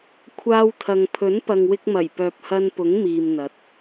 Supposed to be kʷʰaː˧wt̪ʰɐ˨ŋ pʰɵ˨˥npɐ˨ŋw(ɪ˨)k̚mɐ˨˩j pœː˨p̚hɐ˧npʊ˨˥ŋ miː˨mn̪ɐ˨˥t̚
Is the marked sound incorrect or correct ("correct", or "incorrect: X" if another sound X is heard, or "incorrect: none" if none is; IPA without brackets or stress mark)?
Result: incorrect: ɪ˧